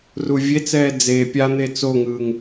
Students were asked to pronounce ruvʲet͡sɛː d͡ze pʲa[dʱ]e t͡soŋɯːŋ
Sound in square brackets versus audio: incorrect: n̪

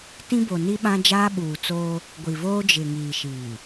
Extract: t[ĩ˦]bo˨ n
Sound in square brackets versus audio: correct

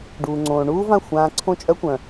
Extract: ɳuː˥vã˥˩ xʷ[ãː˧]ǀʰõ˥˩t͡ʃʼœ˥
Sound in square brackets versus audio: correct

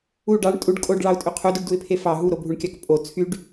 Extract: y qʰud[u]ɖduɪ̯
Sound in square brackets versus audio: correct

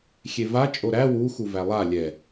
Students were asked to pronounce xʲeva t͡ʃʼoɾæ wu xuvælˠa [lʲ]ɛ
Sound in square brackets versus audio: correct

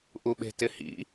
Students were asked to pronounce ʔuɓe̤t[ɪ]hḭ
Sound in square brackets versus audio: correct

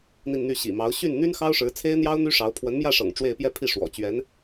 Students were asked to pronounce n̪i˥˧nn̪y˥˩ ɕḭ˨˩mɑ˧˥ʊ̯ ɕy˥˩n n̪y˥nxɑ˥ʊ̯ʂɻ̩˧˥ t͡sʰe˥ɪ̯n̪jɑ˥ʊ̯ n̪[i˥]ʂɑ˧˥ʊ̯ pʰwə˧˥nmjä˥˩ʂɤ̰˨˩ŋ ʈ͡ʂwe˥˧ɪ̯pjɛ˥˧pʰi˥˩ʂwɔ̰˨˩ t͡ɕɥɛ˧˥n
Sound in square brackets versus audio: incorrect: y˥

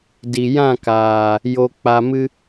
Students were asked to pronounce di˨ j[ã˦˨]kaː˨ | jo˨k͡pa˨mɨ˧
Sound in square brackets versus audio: correct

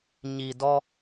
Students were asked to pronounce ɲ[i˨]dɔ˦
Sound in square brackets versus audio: correct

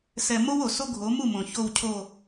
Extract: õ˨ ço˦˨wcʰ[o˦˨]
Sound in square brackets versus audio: correct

